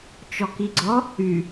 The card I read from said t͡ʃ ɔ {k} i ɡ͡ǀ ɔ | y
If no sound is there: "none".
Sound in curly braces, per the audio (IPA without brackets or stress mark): k